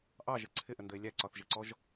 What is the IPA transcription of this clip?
ʔ ɑ ʒ ə ǀʰ ɪ ʔ ə n d ə e̯ lʲ æ ǀ ɒ θ ʒ ə ǀ ɔ ʒ

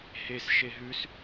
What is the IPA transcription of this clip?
h e s ʃ e ɦ ʉ s

